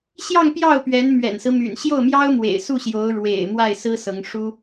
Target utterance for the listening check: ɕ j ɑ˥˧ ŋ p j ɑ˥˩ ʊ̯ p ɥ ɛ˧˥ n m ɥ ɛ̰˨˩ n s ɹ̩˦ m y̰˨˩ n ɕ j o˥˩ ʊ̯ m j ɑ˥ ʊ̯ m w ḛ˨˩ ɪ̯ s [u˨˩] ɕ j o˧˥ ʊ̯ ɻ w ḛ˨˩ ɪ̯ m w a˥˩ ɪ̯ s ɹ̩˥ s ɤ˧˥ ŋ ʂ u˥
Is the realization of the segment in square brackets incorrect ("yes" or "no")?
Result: yes